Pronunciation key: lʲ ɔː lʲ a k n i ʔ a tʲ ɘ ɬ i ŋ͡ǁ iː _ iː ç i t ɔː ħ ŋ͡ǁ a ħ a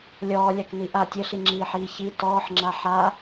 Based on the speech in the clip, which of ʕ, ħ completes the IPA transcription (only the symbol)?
ħ